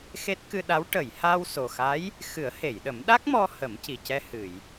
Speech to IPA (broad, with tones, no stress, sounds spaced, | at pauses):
x e˦˥ t̚ k ɨ˧ ɗ a˧˥ w ʈ ə˨˩˨ j h aː˧ w s o˨˩ x a˧˥ j | x ɨ˨˩˦ ə̯ h e˨˩˨ j ɗ ə˨˩˦ m ɗ a˦˥ k̚ m ɔ˧ h ə˨˩˦ m c i˨˩ c ɛ˧ h ɨ˨˩˨ j